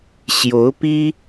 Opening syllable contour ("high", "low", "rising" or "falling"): rising